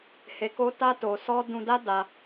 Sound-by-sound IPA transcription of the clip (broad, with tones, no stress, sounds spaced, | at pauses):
h e˨ k o˧ t a˧ t o˨ s ɔ˧ d ũ˧ d a˦ d a˧